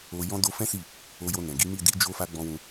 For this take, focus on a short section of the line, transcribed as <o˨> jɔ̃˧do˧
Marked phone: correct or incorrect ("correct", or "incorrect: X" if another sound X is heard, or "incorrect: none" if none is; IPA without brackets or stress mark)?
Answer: correct